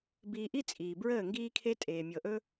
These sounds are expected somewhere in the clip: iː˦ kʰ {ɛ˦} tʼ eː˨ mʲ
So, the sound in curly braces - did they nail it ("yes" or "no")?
no